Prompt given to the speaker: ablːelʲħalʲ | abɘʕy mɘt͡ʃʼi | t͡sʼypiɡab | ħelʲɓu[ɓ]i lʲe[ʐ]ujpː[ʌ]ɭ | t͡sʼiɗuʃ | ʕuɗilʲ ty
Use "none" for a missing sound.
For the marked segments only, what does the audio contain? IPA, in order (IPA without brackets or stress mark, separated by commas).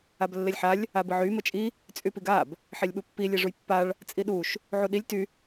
pː, ʐ, a